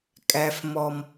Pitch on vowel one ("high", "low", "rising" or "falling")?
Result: high